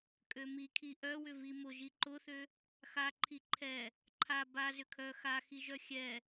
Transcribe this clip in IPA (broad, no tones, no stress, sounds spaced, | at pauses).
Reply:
kʼ ø m i kʰ i ʔ œ w ʏ v i m ʊ ʒ i ǃ ʊ θ ø | x a ǃʰ i ǃʰ ɛ | ǃʰ a b a z ʏ kʰ œ x a x i ʒ œ xʲ ɛ